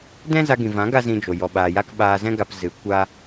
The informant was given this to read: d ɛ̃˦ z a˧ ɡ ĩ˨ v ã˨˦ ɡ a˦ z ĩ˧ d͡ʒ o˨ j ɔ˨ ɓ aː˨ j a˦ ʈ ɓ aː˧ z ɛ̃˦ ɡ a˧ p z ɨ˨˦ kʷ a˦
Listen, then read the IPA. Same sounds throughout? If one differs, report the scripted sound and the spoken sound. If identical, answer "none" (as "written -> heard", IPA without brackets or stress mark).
ʈ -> k